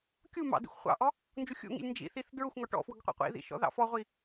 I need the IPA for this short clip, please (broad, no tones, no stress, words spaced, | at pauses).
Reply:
kʲu mɑ̰ dḭxʷχʷɑ̰ʔɔ | nd͡ʒuxʲṵŋḭlʲ nd͡ʒḭθiθ dɹʊxʷŋɔ ʈɔ̰fwʊɡ qʷḭqʷḭðḭ ʃɔ̰ðɑ̰fɔʁʷi